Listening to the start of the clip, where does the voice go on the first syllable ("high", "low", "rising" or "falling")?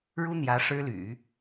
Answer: high